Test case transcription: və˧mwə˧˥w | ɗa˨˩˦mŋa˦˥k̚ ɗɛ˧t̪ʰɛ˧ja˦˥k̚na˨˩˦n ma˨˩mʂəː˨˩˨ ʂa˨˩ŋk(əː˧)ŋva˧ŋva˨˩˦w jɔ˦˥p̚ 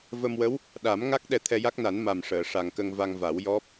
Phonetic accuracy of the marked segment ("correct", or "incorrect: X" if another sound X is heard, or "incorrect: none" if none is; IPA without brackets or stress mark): incorrect: ə˧